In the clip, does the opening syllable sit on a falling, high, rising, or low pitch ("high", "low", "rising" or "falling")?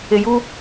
low